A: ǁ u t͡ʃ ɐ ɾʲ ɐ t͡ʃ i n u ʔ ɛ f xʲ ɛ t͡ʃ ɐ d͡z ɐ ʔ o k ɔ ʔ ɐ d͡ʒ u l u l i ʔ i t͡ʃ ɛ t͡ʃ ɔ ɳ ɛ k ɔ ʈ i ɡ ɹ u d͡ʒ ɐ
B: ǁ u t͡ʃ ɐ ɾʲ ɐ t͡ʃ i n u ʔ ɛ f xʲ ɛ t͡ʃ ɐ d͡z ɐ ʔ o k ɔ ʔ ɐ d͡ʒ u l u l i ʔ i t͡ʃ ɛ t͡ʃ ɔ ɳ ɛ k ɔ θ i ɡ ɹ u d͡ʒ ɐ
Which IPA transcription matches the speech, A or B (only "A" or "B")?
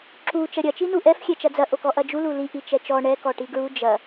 A